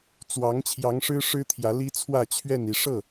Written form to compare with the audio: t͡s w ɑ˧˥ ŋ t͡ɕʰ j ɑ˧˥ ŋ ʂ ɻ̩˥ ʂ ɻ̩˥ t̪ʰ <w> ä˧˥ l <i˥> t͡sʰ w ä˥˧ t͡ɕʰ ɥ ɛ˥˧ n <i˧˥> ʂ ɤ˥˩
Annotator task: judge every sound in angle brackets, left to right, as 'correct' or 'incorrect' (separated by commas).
incorrect, correct, incorrect